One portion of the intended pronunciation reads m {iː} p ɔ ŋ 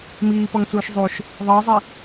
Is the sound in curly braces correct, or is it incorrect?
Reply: correct